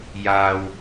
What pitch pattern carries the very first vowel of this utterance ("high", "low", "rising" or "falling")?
low